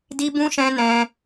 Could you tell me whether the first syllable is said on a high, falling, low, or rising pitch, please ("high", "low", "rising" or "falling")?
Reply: high